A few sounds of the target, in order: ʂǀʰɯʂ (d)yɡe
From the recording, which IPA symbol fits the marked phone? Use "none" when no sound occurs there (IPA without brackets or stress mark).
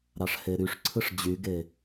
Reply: d͡ʑ